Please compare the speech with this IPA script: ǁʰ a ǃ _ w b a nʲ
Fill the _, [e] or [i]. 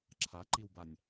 i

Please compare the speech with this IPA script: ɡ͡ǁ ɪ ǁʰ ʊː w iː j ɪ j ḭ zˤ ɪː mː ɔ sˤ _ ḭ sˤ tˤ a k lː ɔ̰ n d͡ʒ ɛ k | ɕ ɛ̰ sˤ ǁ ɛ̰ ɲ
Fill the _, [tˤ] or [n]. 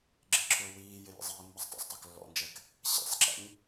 tˤ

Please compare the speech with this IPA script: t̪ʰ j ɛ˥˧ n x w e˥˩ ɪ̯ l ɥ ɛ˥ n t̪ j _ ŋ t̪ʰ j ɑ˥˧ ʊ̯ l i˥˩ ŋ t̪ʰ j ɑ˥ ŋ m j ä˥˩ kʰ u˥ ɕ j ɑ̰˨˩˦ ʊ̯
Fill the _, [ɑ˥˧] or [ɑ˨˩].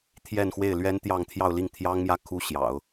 ɑ˥˧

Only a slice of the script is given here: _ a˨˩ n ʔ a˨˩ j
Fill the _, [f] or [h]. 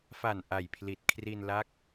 f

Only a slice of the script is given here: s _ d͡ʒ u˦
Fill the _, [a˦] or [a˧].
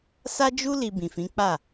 a˦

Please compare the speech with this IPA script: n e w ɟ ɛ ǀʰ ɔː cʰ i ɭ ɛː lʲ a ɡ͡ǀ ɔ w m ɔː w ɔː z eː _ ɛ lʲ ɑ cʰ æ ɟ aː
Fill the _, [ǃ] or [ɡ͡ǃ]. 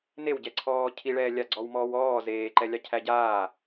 ǃ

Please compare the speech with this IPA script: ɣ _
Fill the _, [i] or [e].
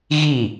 i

